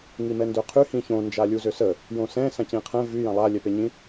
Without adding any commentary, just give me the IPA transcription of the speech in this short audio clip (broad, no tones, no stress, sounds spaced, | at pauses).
ŋ i m ɛ n d ø qʰ y h ĩ ç õ n d͡ʒ a lʲ u z ø s ə | j õ s ɛ̃ s ã c ĩ qʰ ɛ̃ v y j ã lˠ a lʲ ɛ p e ɲ ĩ